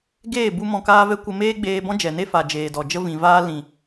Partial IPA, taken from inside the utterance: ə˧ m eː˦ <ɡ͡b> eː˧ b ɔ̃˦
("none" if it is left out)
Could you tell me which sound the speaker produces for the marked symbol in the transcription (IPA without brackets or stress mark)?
ɡ͡b